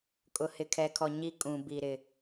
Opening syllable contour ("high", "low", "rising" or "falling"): low